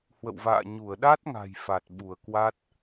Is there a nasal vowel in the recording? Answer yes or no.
no